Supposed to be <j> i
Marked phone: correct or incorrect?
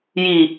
correct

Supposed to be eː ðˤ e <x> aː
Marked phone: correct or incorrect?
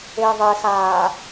correct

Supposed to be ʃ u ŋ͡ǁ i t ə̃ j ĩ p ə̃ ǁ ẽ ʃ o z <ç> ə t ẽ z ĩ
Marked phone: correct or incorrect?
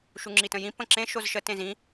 incorrect: ʃ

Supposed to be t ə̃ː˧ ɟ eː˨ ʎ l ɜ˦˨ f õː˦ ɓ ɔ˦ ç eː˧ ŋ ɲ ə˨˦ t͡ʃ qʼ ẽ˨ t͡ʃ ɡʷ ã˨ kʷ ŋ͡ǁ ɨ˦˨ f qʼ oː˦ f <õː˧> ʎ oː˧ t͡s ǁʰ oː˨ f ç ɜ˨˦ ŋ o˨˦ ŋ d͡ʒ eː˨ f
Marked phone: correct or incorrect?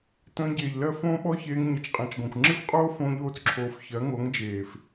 correct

